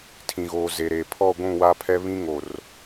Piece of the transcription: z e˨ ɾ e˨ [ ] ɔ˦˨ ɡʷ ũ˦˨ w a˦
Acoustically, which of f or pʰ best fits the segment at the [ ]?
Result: pʰ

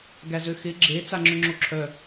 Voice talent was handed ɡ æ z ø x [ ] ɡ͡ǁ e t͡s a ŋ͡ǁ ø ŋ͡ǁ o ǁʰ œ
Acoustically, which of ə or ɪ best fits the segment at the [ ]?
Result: ɪ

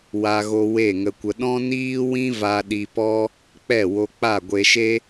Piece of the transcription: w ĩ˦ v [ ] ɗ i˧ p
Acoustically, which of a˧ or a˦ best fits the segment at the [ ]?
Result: a˧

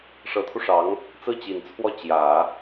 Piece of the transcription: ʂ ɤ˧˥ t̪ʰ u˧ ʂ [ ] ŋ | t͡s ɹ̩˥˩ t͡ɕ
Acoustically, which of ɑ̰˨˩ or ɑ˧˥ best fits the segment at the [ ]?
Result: ɑ˧˥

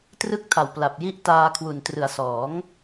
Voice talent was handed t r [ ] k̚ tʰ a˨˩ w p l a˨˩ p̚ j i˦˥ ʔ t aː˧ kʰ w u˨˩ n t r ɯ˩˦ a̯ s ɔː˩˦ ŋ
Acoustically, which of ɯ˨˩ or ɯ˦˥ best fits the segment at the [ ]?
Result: ɯ˦˥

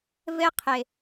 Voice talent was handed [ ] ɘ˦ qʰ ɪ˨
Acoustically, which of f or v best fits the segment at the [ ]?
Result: v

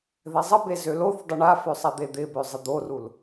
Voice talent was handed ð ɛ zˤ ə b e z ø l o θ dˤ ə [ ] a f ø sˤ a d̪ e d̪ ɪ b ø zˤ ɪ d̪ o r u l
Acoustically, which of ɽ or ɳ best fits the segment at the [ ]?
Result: ɳ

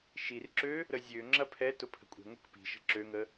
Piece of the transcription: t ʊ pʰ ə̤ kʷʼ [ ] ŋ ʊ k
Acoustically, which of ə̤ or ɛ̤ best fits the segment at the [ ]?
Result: ɛ̤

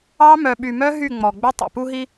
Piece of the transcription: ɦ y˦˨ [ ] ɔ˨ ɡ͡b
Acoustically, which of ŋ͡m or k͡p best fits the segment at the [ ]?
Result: ŋ͡m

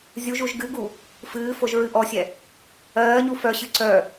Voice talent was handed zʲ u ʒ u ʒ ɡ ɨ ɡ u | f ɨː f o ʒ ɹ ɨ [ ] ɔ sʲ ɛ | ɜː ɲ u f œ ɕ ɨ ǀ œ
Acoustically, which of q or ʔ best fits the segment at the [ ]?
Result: ʔ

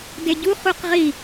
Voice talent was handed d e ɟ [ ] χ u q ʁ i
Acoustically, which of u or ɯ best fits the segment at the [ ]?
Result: u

